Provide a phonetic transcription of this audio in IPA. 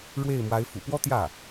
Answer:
ɻwe˥˩ɪ̯mwa˧˥ɪ̯ fṵ˨˩pwɔ˥t̪jä˥˩

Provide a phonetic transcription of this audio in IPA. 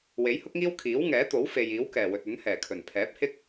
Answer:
we˨˥jhʊ˥k̚ŋiː˥w kʰiː˨˥wŋɛː˨˥t̪o˨˥w fe˨jiː˨˥wkɛː˨˩ wɵ˨t̚ɵ˨˥n hɛː˨˩kʰɵ˨˩n pʰɛː˨˥p̚hɪ˥k̚

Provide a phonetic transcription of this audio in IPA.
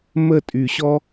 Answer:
mə˦˨tʼy˧ɕɔ˦

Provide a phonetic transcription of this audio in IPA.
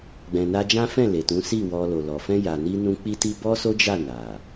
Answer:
ɡ͡bɛ̃˨na˧ d͡ʒã˦fɛ̃˦˨le˨ tũ˨˦ si˦˨wɔ˧ lo˨lɔ˨ fɛ̃˧ja˨ni˧nũ˧ k͡pi˦ti˦ bɔ˦so˦d͡ʒa˦˨ na˨

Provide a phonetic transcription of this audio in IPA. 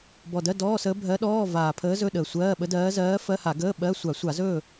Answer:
bɔ˨˩dɜ˧˥˧ dɔː˧˥˧səː˧˥ bʱɜ˧˥ɗɔː˧˥˧ vaː˨˩pʰəː˧˥zɵ˧˥˧ ɗəː˨˩sʷɜː˧˥˧ɓə˧˥dɜː˧˥ zɜː˧˥fɜ˧˥˧ha˧˩˧ɡəː˧˥˧ ɓɜ˧˥˧ sʷa˧˩˧sʷa˧˩˧zɵː˥˨

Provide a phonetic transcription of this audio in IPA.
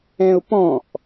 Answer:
ɛ̃ʊ̯pɔ̃ʔ

